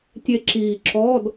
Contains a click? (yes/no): yes